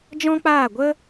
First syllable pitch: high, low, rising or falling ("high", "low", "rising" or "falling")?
high